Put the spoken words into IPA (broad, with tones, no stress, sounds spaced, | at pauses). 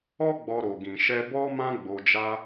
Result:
ɔ˦ ɡ͡b ɔ˧ ɾ o˨ ɡ ĩ˨ ʃ ɛ˧ b ɔ˦ m ã˦ ɡ͡b o˧ d͡ʒ a˦